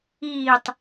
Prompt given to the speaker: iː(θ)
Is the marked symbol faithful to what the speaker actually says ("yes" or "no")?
no